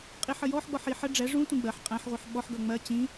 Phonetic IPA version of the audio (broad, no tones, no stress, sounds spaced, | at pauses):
qʼ i ħ ə j ɔ ħ ɡ͡b ɔ ħ i ħ ə ɖ͡ʐ ɛ ʐ ũ tʷ ĩ ɡ͡b ɜ ħ qʼ æ̃ ħ ʁʷ i ħ ɓ ɔ ħ ɡ ʌ ŋ͡m ɜ t͡ɕ ĩ